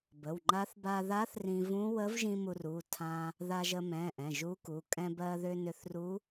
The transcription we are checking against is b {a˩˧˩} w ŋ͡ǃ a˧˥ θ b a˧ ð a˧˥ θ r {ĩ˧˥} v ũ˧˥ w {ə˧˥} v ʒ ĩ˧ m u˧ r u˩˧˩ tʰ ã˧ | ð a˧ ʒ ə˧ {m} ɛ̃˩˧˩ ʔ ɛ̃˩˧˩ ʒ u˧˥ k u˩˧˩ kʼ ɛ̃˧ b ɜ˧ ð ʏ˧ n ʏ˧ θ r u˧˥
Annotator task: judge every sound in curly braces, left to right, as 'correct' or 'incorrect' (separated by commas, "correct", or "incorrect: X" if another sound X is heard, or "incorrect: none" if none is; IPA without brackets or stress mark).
incorrect: ə˩˧˩, incorrect: ĩ˧, correct, correct